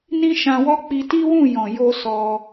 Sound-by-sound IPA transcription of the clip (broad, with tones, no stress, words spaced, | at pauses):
nĩ˦ʃã˧wɔ˦ k͡pi˧ti˦wũ˦˨ jɔ̃˨jo˧ sɔ˧